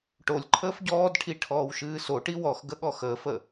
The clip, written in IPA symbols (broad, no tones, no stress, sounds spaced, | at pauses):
ʈ o lʲ ǃʰ əː f ɟ ɔː d ʈʰ i ʈʰ ɔː w ʃ ɨː s o ʈ i w ɔ x ɡ ə ɠ ɔ x əː f ə